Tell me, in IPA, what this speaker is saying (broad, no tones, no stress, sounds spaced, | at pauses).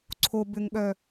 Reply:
ǀʰ o b ʏ ŋ ɠ œ